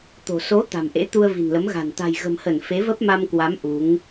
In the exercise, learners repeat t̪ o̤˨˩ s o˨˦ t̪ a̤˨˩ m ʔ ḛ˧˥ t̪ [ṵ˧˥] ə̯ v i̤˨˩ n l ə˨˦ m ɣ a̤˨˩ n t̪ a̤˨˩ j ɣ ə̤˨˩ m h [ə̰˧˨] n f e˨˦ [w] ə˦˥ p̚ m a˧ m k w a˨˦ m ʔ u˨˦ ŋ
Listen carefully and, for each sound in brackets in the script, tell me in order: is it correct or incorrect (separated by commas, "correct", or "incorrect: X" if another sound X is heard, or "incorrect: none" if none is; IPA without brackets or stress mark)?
incorrect: u˧, incorrect: ə˧˩, incorrect: v